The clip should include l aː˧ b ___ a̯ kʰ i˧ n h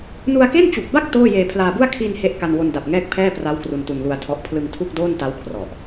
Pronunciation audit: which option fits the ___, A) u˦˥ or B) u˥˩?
B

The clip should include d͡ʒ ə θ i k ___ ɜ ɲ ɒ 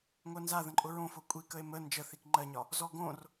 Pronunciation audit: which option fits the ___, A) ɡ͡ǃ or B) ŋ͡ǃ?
B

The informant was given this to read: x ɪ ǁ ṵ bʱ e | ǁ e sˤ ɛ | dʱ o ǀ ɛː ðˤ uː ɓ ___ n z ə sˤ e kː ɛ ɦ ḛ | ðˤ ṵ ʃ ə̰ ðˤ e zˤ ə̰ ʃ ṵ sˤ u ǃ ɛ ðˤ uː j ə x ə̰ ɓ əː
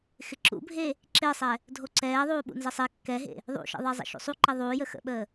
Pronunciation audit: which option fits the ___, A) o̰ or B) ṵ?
B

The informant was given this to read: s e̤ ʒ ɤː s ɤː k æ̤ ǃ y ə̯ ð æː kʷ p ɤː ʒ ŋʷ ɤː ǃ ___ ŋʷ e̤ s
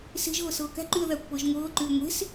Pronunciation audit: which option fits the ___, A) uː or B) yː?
B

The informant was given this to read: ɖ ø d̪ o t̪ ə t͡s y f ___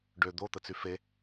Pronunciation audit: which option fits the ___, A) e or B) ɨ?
A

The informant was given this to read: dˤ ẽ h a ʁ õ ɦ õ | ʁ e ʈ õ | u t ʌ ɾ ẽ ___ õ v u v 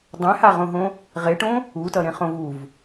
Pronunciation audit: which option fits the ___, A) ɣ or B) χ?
B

